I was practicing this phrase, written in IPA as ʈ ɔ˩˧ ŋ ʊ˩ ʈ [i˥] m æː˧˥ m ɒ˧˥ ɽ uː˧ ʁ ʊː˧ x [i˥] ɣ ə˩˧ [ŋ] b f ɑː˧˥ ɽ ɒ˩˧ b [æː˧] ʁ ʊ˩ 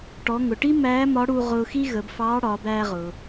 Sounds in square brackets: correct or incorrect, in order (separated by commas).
correct, correct, incorrect, correct